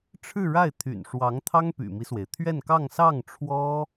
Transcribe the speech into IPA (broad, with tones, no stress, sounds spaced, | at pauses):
ʈ͡ʂʰ ɻ̩˥˧ ɻ a˥˩ ɪ̯ t̪ʰ y̰˨˩ n ʂ w ɑ˧˥ ŋ t̪ʰ ɑ˥ ŋ p y̰˨˩ m i˦ s w e˩ ɪ̯ t̪ʰ ɥ ɛ˥˧ n k ɑ˥˧ ŋ s ɑ˥˩ ŋ ʈ͡ʂʰ w ɔ˥